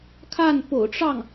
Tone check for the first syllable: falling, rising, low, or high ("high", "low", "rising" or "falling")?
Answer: falling